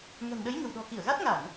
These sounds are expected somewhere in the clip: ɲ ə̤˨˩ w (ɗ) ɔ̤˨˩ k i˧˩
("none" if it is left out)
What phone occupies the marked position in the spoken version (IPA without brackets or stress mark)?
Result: ɗ